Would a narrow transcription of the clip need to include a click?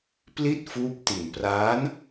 no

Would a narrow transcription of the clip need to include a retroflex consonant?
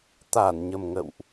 no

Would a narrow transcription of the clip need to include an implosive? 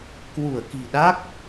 yes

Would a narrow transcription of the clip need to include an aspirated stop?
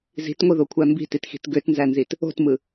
yes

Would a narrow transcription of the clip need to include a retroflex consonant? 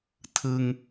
no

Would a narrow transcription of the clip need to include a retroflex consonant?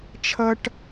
yes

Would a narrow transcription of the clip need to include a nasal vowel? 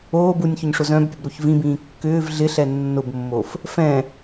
yes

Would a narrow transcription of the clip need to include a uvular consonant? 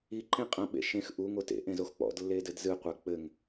yes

